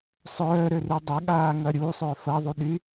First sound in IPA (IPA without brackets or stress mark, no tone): sˤ